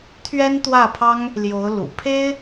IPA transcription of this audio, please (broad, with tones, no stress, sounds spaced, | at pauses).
t̪ʰ ɥ ɛ˥ n t̪ w ä˥˩ pʰ ɑ˥ ŋ | l j o˧˥ ʊ̯ l ṵ˨˩ pʰ e˥ ɪ̯